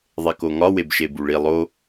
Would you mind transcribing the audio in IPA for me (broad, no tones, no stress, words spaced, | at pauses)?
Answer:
ðˤekoŋɒ webʃebuɭi lˠo